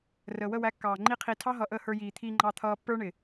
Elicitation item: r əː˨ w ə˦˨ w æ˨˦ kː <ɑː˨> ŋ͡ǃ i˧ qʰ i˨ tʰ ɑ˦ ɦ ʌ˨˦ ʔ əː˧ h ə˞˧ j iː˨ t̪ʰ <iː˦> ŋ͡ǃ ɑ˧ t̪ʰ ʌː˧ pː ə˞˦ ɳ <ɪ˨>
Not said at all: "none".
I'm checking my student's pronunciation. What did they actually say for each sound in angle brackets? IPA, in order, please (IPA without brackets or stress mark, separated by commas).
ɑː˨, iː˧, ɪ˨